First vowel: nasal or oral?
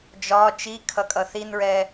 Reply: oral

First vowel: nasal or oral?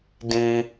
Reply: nasal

